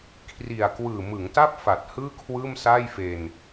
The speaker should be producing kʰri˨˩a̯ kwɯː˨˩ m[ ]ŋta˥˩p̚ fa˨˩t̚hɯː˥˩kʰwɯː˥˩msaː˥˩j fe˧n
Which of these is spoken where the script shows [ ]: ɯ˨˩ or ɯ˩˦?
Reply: ɯ˩˦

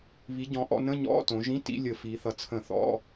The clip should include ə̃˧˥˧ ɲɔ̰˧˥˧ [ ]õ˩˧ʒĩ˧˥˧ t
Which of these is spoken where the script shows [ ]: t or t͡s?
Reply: t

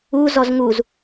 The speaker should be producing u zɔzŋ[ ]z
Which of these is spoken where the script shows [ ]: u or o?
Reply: u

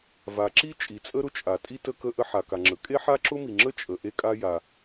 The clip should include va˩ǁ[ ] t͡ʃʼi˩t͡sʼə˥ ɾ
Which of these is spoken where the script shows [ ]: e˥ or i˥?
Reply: i˥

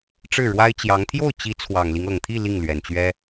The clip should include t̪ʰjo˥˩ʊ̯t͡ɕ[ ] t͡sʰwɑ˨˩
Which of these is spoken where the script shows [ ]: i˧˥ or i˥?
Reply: i˧˥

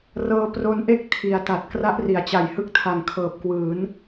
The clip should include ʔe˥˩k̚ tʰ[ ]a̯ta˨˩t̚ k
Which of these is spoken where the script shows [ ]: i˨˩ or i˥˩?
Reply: i˨˩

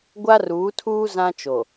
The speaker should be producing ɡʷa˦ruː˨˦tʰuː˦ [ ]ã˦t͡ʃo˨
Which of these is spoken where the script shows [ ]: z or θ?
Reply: z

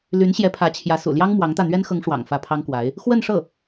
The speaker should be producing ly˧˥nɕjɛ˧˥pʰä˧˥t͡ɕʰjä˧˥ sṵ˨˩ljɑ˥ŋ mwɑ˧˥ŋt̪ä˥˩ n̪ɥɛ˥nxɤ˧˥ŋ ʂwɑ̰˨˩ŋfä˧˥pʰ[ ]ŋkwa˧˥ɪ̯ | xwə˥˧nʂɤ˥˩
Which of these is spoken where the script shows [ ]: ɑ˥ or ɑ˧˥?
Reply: ɑ˥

